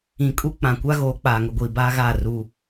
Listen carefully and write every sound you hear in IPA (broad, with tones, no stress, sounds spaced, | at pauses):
ĩ˨ kʼ u˦ k͡p ã˨ kʷ a˦ ɣ oː˨˦ k͡p aː˨ ŋ ʊ˨ ɡʷ iː˨ b aː˦ ɣ aː˦˨ r u˦